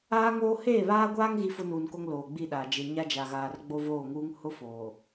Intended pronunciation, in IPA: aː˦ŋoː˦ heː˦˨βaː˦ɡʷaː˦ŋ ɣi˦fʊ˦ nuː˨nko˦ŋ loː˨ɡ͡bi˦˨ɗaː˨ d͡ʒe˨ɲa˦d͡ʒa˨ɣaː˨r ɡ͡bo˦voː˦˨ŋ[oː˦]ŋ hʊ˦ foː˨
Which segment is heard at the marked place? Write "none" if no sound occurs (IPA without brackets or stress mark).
uː˦